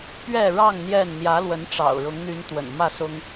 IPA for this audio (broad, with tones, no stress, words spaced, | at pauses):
pɥɛ˥˨ ɻɑ˥˨ŋ n̪jɛ˥˨n n̪jä˨˦lwə˨˦nʈ͡ʂɑ̰˨˩ʊ̯ ɻʊ˨˦ŋn̪y˨˦n t̪wə̰˨˩n mä˥˨sʊ˦ŋ